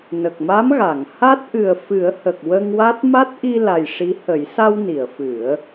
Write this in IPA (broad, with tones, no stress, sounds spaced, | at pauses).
n ə˨˩ k̚ m a˧˥ m ɣ a˨˩˨ ŋ h a˦˥ t̚ ʔ ɨ˨˩ ə̯ f ɨ˨˩˦ ə̯ h ə˨˩ k̚ w ə˧ ŋ w a˦˥ t̚ m a˦˥ t̚ ʔ i˧ l a˨˩ j ʂ i˧˥ h ə˨˩˦ j s a˧ w n i˨˩˨ ə̯ f ɨ˨˩˦ ə̯